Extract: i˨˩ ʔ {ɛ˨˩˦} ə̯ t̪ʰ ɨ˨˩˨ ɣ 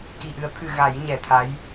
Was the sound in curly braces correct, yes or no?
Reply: no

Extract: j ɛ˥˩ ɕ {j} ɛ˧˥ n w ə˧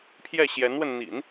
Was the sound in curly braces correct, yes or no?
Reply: yes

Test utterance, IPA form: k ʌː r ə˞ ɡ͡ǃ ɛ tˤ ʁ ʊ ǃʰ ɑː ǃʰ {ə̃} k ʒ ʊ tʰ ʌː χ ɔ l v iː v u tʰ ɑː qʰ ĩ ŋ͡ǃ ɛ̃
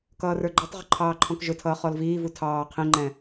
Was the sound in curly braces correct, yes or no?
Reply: no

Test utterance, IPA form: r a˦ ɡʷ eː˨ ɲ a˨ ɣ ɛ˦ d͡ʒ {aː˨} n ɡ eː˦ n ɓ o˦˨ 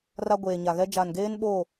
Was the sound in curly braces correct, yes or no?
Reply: no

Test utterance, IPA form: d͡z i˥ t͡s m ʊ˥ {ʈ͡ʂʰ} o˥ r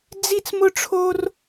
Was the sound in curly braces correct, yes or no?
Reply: yes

